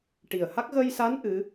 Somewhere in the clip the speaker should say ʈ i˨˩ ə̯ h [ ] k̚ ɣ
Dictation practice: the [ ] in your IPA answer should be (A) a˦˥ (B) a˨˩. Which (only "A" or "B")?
A